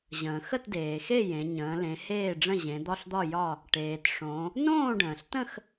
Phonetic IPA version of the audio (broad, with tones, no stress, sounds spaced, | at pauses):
ʑ ə̃ː˩ x ə˥˨ t d eː˩ x e˥˨ j ẽ˩˧ ɲ ə̃ː˩˧ l ẽ˩˧ h eː˥˨ ɖ͡ʐ ə̃˥˨ ʑ ẽ˩˧ d̪ ɒ˥˨ ɬ d̪ ɒ˥˨ j ɒ˥˨ | ʈ eː˩ t ʂ õ˩˧ | n õː˥˨ ɖ ə̃ː˩ ɬ t ə̃˥˨ x